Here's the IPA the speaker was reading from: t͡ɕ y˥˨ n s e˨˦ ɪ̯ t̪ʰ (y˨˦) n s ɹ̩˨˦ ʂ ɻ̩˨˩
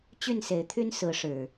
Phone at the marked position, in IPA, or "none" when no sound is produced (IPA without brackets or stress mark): y˦